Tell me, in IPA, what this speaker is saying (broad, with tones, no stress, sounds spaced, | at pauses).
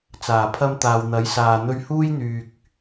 t͡s aː˨˩ pʰ ɐ˧ m t̪ aː˨ w n̪ ɐ˨˥ j s aː˨ n̪ ɵ˧ ɥ h uː˥ j n̪ yː˨ k̚